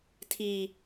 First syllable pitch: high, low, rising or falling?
low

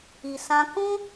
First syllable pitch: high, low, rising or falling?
low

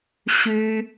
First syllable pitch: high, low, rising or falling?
high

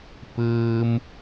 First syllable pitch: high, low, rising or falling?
low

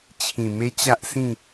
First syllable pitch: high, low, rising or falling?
low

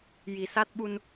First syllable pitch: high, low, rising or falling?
low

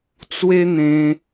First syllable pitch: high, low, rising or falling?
high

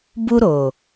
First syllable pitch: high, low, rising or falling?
high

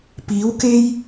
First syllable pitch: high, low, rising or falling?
rising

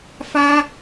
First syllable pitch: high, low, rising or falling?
high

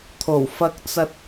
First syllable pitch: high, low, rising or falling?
low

